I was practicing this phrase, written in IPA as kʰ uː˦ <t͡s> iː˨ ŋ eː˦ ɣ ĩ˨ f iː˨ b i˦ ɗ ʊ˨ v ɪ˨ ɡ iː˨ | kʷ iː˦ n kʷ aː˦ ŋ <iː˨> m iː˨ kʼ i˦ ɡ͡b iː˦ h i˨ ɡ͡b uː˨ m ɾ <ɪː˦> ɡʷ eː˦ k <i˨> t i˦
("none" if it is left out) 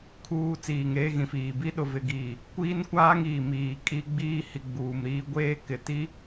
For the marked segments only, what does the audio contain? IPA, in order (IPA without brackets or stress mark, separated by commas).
t͡s, iː˨, iː˦, ɪ˨